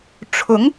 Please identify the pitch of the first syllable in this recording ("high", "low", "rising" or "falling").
rising